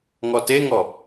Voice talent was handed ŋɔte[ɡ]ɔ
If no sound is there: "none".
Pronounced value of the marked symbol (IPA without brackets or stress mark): ŋ